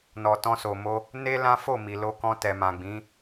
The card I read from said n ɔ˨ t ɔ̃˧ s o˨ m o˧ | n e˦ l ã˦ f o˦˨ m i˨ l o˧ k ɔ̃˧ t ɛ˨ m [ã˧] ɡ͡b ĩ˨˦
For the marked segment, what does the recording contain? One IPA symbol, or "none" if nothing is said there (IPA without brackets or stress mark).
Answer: ã˨